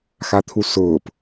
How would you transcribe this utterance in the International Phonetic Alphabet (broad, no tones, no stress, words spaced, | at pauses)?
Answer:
xat̪ʰusʊːp